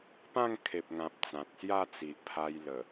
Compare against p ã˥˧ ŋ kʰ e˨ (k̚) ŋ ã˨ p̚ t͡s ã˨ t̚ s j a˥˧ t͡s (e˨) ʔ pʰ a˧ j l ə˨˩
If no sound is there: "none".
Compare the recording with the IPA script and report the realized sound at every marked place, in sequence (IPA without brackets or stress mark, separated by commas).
p̚, i˨